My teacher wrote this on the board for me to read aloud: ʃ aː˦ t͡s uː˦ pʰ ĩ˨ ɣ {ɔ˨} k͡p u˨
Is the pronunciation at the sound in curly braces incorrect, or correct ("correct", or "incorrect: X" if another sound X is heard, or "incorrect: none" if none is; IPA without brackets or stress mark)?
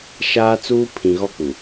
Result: incorrect: ɔ˦